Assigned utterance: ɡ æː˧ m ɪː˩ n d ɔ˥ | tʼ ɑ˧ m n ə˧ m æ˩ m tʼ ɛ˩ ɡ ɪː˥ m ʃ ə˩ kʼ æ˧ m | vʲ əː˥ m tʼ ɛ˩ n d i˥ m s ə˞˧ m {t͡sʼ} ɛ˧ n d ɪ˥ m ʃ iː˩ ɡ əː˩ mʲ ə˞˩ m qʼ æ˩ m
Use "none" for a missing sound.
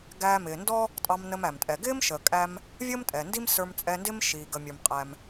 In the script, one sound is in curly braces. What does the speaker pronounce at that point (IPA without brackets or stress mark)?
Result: t͡sʼ